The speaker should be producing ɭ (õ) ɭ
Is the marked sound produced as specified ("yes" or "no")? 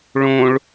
yes